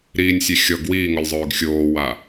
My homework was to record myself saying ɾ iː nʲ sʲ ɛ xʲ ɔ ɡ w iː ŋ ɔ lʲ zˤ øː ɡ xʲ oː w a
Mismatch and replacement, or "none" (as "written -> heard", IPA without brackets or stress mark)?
none